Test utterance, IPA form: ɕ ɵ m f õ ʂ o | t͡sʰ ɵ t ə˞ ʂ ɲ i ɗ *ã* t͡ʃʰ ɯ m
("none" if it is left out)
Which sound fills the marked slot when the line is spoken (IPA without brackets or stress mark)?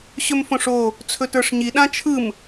ã